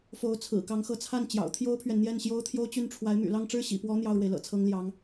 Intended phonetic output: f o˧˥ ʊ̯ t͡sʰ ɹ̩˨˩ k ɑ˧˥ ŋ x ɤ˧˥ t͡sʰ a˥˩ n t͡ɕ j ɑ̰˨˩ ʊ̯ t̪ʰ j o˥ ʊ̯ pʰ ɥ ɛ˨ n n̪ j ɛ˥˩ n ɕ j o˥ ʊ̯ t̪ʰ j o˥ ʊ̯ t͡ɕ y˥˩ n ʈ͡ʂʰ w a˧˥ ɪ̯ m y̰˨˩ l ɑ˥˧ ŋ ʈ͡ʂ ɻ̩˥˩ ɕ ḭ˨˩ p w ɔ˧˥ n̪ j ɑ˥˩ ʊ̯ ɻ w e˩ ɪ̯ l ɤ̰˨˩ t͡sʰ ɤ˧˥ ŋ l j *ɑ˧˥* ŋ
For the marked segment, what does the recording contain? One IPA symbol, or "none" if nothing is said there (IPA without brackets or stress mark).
ɑ˧˥